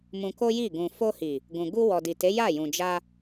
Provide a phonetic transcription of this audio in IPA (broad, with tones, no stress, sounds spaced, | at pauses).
m ũ˧ k o˦ j i˦˨ ɡ ũ˨ f o˧ h i˨ | ɡ ũ˨ ɡ u˧ w ɔ˨ d i˨ t e˨˦ j a˦˨ j ũ˨ d͡ʒ a˧